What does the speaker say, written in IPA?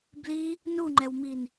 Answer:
b l i | n u ŋ͡ǃ ɛ w m i n

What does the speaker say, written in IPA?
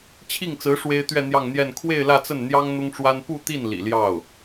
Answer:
t͡ɕʰ i˥˩ ŋ t͡s ɹ̩˧˥ ʂ w e˥ ɪ̯ t̪ ɥ ɛ˥˧ n̪ j ɑ˥˧ ŋ n̪ j ɛ˥˧ n kʰ w e˥˧ ɪ̯ l ä˥˧ t͡s ə˥˩ n n̪ j ɑ˥ ŋ n̪ ʊ˥ ŋ ʈ͡ʂ w a˥ n p u˥˧ t̪ i˥˩ n l ḭ˨˩ l j ɑ˥˩ ʊ̯

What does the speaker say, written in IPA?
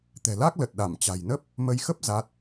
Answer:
t̪ ɛ̤˨˩ l a˦˥ k̚ l ə˨˩ t̚ ɗ a˧˩ m t͡ɕ a̤˨˩ j n ə˦˥ p̚ | m ə˨˦ j x ə˦˥ p̚ z a˦˥ t̚

